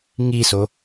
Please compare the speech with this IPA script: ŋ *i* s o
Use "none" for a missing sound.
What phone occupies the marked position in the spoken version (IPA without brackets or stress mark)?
i